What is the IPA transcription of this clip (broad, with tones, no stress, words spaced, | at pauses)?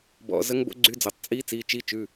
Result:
bɔ̰˩˧˩ zə˧˥ŋbo̰˧˥ ɡ͡ǀy˧˥d͡zo˩˧˩tˤ t͡sʼi˧˥ t͡si˩˧˩t͡ʃi˧˥t͡ʃʉ˩˧˩